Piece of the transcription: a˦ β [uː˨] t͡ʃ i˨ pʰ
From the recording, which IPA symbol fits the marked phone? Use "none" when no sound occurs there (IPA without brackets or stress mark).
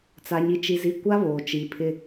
oː˨